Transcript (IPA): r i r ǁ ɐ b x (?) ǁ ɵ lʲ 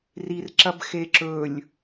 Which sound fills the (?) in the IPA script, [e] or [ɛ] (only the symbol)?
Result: e